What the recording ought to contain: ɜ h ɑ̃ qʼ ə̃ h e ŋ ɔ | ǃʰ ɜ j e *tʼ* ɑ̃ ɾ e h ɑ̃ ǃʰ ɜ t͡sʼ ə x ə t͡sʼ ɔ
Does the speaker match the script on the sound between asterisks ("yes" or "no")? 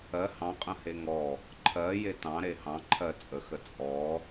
no